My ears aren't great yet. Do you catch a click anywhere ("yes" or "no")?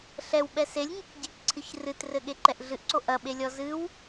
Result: yes